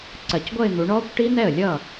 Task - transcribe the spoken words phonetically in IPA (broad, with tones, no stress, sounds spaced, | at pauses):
ǀ ɜ˨˩ c ɡʷ ʌ˥˧ ɪ̯ n̪ u˩˧ ɳ ɔː˦˥ kʷ ʈ i˦˥ n̪ ɛ˥˩ ə̯ lʲ ʌː˥˩